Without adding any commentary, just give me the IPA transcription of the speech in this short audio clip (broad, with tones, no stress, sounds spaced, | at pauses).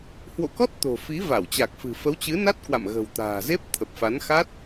h w o̰˧˨ k ɔ˦˥ t̚ t̪ o̤˨˩ f i˨˦ v a˧˩ w t͡ɕ a˨˩ k̚ f ɨ̤˨˩ f ə˨˦ w t͡ɕ ɨ˨˦ n a˦˥ t̚ k w a̰˧˨ m ɣ ə̤˨˩ w t̪ a̤ː˨˩ z e˦˥ p̚ t̪ʰ ə˨˩ p̚ f a˨˦ n x a˦˥ t̚